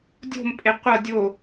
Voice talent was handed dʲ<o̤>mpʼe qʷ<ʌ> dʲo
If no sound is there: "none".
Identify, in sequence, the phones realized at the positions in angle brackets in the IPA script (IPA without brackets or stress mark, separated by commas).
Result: o̤, ʌ